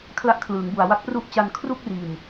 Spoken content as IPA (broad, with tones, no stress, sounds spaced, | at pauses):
kʰ l a˥˩ ʔ kʰ l ɯː˩˦ ŋ b u˨˩ a̯ w a˦˥ k̚ p r u˥˩ ʔ t͡ɕ a˧ n kʰ r u˥˩ k̚ r iː˨˩ m